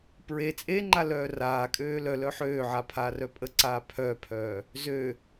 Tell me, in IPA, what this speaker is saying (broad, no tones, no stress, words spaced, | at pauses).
pɹe t͡sʼeŋ͡ǃa lœːraːkʼøː lœ lœħøːʕa pʰaːrœpʼəǀaː pʰœːpʰœː | zø